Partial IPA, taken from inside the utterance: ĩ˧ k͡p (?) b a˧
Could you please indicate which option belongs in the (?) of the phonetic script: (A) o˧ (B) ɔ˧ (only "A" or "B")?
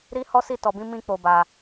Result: A